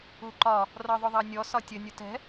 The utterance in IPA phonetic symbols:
u ǃ ɒ | r ɒ ðˤ ʊ ðˤ ɑ nʲ ɔ s ɒ tʲ ə nʲ u t ɛ̤

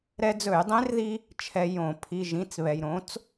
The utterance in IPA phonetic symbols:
ɾ ɛ˧ d͡z ɵ˧˩˧ j dˤ ẽ˧˥ r ð i˧ | t͡ʃʰ ɛ˧ j õ˧˩˧ pʰ i˧˥˧ ʒ ĩ˧˥˧ t͡s β ɛ˧ j ɾ õ˩˥ t͡s

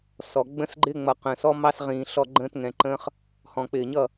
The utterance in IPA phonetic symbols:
s ɔ˨ ɡ͡b ə̃˦ s ɡ͡ǃ ɪ˦ ŋ͡m ʌ˨ q ə̃ː˨ s ɔ˦ m ɑ˦ s ʁ ĩː˨ ɬ ɔ˦˨ ɡ͡ǃ ə̃ː˦ t ŋ ɛ̃˨ ǃ ə̃ː˦ χ | h ɔ̃˨ k͡p ɪː˨ ɲ ʌ˦˨

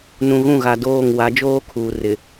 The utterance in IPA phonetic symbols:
n ũ˨ ɣ ũ˦˨ ɣ a˨ d oː˦˨ ŋ w a˨˦ d͡ʒ oː˦ kʰ uː˨ r ɪ˨

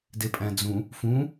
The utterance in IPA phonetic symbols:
d e pʼ æ̃ d͡z ũ | f ũ

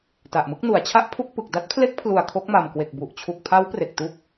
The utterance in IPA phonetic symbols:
t a˨˩ ʔ m ɯ˦˥ k̚ n u˩˦ a̯ t͡ɕʰ a˥˩ ʔ pʰ u˥˩ k̚ p ɯ˨˩ k̚ d a˦˥ t̚ pʰ l e˦˥ k̚ pʰ l u˨˩ a̯ kʰ o˦˥ k̚ m a˨˩ m k w e˨˩ k̚ b u˨˩ ʔ t͡ɕʰ u˨˩ k̚ pʰ a˦˥ w p r e˨˩ k̚ t u˦˥ k̚

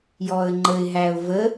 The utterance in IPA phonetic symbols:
j ɔ ə̯ ŋ͡ǃ ə ɪ̯ ɦ æ ʊ̯ v ə

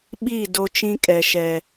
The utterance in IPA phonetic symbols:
ɓ iː˦˨ d o˦ t͡ʃ ĩ˦ kʼ ɛ˨ ʃ ɛ˨

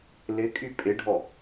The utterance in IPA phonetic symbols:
l ɪ kʼ y pʼ ɪ ɖʱ ɔ

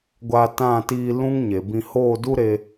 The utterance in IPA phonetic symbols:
ɡʷ a˧ t ã˦˨ t iː˧ l ũ˦ ŋ ɲ e˨ b ĩ˧ h oː˦˨ d u˦ ɾ e˧

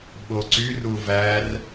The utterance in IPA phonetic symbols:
ɓ o ǀ y r u v æ r

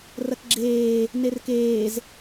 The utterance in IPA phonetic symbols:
r ɐ k ɡ͡ǁ eː | n e r k eː z

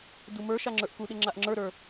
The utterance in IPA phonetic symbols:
d u m ə˞ ʃ a ŋ͡ǁ ə˞ ʔ k u ɗ ɪ ŋ͡ǁ a ʔ ŋ͡ǁ ə˞ ɾ ə˞

